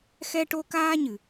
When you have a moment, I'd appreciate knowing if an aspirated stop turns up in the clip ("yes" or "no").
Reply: no